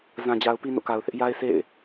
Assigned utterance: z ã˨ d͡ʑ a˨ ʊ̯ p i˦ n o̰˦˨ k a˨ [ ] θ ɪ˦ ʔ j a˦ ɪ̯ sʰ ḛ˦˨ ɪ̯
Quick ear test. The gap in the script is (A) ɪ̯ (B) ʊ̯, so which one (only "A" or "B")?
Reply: B